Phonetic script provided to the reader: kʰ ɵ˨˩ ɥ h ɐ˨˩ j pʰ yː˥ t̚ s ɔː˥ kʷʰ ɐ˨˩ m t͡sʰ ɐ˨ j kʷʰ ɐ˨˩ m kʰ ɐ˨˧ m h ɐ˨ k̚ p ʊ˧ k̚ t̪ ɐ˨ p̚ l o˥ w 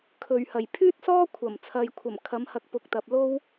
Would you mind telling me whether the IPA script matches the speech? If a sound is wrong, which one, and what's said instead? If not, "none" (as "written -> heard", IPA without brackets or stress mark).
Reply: none